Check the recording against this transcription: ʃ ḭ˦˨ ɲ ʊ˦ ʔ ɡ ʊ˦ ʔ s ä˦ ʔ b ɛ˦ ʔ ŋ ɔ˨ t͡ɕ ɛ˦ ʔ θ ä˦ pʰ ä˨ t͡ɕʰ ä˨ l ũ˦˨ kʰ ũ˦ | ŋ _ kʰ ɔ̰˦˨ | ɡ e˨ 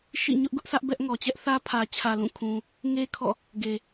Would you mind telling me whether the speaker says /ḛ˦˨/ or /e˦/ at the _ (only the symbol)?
e˦